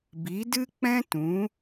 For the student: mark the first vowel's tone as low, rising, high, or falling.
rising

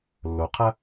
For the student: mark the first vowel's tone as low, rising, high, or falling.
low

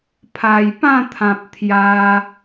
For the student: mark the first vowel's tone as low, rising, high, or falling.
low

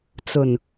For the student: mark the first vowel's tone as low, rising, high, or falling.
low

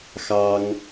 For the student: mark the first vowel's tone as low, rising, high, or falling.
high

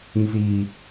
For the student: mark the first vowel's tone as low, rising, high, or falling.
low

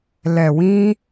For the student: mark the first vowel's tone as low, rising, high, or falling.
low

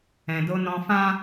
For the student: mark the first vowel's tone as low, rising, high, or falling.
low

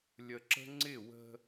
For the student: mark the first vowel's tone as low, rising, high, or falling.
low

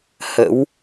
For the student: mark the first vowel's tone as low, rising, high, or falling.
rising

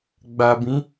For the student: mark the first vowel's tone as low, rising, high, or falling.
low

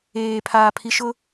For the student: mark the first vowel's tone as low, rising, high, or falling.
low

